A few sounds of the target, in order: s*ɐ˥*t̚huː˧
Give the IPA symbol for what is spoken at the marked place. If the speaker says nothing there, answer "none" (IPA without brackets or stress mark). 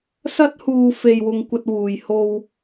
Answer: ɐ˥